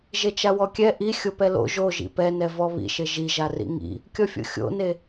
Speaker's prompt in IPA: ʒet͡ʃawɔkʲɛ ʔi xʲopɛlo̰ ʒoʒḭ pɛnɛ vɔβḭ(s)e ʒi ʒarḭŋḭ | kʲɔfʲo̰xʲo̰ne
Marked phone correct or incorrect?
incorrect: ʃ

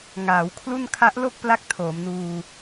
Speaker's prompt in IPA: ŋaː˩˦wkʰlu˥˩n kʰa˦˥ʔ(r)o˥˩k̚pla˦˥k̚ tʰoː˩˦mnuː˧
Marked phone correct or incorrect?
incorrect: l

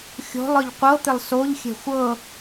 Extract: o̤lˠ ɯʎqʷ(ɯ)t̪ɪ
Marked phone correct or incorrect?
incorrect: ɤ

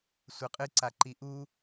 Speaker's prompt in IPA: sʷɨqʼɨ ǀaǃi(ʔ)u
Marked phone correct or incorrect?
correct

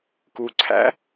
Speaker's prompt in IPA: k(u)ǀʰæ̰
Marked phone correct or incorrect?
correct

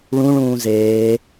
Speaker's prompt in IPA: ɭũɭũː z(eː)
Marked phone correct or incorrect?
correct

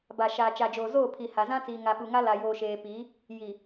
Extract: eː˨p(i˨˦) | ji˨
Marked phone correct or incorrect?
correct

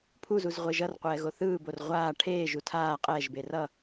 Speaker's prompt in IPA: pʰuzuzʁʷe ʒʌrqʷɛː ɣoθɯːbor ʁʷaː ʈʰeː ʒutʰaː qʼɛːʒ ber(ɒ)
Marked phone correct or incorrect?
incorrect: ʌ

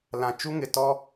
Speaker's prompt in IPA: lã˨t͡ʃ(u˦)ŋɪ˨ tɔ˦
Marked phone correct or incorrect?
correct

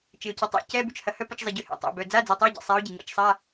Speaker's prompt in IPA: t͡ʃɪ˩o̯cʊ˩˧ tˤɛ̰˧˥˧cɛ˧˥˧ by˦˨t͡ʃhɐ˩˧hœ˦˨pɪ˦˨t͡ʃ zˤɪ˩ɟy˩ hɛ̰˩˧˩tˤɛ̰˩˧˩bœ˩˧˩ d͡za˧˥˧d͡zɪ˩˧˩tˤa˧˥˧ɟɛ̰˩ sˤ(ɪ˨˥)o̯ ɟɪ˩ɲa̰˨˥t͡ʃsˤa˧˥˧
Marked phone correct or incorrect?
incorrect: ɛ˨˥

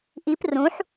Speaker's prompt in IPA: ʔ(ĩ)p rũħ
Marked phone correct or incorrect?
incorrect: i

